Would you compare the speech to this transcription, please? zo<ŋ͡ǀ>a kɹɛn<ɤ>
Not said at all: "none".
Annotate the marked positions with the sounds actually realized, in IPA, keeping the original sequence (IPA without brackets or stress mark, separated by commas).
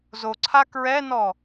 ǀʰ, ɔ